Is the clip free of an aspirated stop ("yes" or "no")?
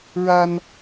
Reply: yes